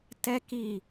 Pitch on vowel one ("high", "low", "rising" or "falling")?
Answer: high